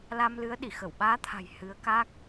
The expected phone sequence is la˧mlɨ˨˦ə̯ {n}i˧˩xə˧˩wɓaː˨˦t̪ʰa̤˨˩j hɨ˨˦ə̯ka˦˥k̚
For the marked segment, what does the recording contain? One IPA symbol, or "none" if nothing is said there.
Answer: ɗ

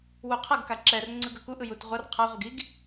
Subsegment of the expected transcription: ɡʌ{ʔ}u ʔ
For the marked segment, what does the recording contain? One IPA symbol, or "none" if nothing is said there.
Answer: k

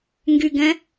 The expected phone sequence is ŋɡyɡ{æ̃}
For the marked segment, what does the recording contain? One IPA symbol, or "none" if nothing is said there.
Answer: ɛ̃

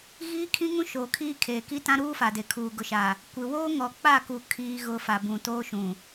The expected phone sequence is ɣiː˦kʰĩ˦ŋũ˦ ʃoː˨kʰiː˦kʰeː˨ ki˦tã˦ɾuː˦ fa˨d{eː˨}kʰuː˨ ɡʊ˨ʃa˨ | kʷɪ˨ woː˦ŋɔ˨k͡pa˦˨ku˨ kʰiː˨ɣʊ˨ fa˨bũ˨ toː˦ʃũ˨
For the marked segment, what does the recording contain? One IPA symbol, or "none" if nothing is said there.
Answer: e˨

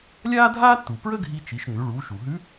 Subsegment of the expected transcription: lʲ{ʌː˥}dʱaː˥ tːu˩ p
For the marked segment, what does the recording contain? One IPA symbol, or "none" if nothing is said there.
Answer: aː˥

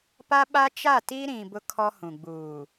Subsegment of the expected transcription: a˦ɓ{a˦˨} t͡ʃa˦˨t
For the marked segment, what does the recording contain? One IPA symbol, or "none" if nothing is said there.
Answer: a˦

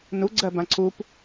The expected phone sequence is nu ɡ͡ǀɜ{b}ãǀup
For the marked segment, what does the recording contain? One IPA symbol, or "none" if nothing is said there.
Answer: b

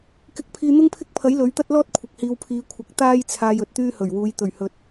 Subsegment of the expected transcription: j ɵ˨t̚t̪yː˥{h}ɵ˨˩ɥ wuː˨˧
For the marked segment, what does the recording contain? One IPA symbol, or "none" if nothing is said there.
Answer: h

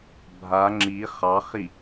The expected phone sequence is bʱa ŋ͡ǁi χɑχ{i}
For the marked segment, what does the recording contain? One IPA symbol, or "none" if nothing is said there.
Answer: i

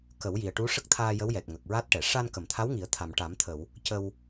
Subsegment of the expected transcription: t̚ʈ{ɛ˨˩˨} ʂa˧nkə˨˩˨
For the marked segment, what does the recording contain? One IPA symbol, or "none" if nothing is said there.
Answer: ɛ˨˩˨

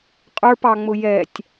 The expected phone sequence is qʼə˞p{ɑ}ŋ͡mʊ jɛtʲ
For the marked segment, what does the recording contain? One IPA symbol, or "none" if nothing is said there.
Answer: ɑ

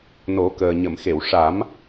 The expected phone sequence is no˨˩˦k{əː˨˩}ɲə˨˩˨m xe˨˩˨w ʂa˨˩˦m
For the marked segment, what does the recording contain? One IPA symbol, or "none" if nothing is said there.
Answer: əː˨˩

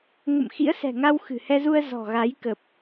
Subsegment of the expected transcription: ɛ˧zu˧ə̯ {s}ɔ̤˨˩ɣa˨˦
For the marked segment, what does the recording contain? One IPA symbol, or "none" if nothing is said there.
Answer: z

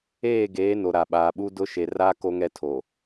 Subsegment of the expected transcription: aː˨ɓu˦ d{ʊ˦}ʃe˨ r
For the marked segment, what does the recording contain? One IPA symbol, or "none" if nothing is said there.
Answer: ʊ˦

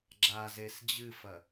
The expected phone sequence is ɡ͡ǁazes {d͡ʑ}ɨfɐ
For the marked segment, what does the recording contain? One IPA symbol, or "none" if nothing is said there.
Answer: d͡ʑ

